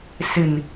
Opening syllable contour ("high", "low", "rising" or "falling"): low